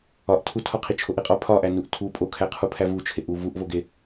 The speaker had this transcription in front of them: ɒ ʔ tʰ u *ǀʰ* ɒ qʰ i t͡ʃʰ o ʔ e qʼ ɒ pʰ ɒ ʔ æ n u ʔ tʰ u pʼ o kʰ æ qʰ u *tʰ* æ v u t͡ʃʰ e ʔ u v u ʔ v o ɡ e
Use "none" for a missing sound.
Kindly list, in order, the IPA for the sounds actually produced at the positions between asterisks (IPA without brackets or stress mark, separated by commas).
tʰ, pʰ